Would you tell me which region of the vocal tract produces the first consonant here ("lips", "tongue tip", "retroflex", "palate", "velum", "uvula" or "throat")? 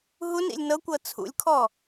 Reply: throat